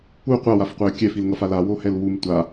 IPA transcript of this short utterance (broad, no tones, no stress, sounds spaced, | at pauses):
u qʷ a w a f qʷ ɛ ə̯ kʲ ɛ f i l ŋ ʌ f a l a w o h ɛ l w u m tʷ a